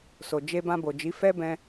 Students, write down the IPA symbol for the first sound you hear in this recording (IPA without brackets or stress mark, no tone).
s